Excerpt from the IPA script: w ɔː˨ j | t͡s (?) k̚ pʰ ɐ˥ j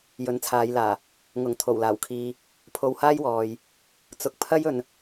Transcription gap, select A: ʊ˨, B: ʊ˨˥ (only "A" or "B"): A